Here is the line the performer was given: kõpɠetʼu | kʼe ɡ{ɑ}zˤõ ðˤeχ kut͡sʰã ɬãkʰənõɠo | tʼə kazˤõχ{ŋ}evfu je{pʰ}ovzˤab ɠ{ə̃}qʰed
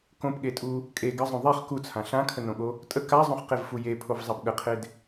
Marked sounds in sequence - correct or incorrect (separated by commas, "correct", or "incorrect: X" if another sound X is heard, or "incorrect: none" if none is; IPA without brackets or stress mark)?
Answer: incorrect: ə, incorrect: q, correct, incorrect: ə